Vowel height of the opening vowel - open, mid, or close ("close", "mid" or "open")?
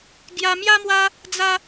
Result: open